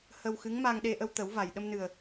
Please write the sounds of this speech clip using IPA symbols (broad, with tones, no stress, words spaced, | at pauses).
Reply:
hə˧wxɨ˧˥ŋ ma˧ŋɗe˧ ʔə˧wt̪ə˨˩˦wva˨˩j ɗə˧mnɨ˨˩ə̯